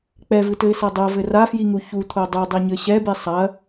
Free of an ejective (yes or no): yes